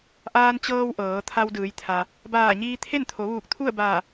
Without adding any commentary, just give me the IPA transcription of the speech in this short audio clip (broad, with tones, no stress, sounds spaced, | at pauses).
ʔ aː˧ n t͡ɕ ɤː˧ w ʔ ɤː˩˧ t̪ʰ a˧ w d ɯː˩˧ j t̪ʰ a˩ | b aː˧˩ ɲ iː˧ t̪ʰ e˥˨ n t̪ʰ o˩˧ ʋ uː˧˩ k̚ t̪ʰ u˥˨ ə̯ b aː˧˩